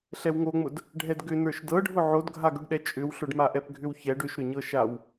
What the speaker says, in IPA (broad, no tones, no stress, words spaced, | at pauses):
ɬɛwŋoŋ͡mʊd | ɖʱɛdɡʏ nə˞ʃdɤɖʱʊ ʕodɡʱaɡʏɖɗɛ t͡ʃʼʏwɬʊɖmaʔɛp ɡʱʏwçɛɖ ʏʃɾʏɲɤʃaw